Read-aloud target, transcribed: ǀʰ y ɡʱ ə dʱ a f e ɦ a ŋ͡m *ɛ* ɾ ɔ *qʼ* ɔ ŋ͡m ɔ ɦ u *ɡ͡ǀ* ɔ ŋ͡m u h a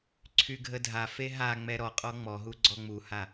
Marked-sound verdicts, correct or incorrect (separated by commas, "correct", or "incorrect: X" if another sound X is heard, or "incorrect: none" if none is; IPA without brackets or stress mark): correct, correct, correct